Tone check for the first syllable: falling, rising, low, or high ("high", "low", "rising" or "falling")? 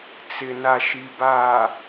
low